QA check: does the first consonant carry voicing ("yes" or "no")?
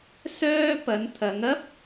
no